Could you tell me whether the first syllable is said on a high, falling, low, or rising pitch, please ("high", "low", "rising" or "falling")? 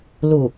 low